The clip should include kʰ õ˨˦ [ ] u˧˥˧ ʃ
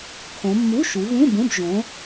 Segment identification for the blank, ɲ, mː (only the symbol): mː